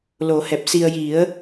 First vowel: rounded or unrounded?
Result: rounded